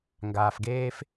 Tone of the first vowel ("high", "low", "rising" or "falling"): low